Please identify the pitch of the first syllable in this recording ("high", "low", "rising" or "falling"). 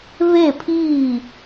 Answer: falling